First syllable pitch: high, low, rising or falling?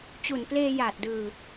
low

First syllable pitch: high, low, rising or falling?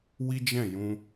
high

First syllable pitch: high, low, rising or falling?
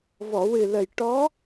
low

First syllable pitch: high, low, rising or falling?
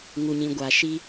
low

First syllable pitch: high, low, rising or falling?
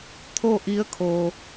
falling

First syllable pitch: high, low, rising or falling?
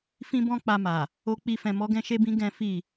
high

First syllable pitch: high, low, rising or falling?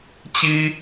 high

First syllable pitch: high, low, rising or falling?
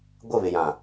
falling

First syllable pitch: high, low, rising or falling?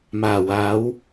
low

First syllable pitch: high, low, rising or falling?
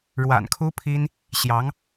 low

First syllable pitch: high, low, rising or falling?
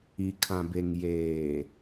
low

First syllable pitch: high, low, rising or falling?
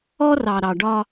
high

